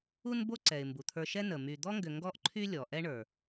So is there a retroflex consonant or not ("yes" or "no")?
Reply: yes